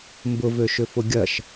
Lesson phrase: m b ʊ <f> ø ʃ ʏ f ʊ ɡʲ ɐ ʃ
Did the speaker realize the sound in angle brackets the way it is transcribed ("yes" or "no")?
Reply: no